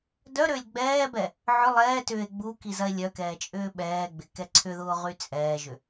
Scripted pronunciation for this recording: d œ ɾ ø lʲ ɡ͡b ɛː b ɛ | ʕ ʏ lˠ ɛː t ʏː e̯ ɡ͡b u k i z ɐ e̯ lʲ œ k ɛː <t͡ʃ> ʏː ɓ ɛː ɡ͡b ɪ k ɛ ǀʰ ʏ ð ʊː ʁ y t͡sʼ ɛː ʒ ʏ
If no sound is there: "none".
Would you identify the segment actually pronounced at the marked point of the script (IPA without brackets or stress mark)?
t͡ʃʼ